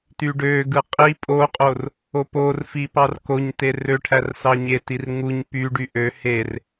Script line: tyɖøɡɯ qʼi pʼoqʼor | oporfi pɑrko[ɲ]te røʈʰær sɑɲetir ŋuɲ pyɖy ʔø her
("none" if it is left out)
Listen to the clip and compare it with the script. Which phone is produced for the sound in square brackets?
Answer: ɲ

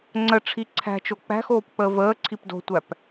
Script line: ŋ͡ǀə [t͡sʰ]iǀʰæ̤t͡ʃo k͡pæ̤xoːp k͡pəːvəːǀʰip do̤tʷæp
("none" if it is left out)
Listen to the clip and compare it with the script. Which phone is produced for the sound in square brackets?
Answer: ʈ͡ʂʰ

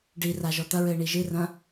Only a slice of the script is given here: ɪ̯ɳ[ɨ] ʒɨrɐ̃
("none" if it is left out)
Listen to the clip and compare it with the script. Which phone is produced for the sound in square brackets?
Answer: i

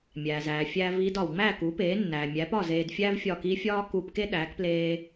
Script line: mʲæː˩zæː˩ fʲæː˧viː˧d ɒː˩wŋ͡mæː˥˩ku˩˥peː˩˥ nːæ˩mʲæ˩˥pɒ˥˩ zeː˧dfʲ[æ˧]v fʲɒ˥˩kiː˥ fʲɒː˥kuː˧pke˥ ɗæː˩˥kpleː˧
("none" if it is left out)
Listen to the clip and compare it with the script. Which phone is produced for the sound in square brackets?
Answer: æ˥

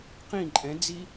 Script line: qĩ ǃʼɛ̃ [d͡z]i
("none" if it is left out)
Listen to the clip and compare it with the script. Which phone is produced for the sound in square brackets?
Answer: d͡z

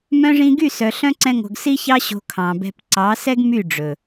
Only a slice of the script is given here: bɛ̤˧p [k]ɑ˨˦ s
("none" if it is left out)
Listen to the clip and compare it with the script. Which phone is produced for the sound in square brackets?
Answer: ǀ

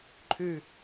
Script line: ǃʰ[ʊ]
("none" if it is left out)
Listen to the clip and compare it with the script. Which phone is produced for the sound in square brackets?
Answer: ʉ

